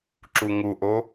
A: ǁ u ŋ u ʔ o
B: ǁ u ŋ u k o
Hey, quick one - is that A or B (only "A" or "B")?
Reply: A